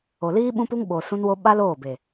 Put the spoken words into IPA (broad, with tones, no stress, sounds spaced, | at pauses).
o˨ l iː˦ ɓ ũ˦ p u˦ ŋ ɓ o˨ s ũ˦ n w o˦ ɓ a˦ l oː˦˨ b e˨